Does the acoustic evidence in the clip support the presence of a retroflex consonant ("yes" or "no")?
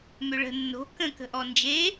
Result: yes